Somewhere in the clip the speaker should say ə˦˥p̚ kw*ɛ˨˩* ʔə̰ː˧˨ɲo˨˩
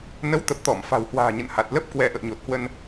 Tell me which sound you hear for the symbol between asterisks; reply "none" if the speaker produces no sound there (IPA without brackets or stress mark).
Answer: ɛ˧